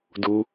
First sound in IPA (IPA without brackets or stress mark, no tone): d